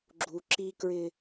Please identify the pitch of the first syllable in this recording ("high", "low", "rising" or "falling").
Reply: low